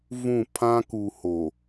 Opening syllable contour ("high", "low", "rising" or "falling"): falling